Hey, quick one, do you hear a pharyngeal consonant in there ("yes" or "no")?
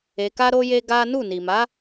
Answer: no